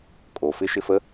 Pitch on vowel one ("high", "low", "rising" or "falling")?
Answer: low